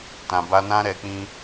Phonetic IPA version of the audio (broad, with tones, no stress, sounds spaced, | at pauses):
t ã˨ b a˧ n ã˦ ɾ ɛ˧ k͡p ĩ˦